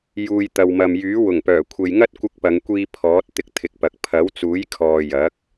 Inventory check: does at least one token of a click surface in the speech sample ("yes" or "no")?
no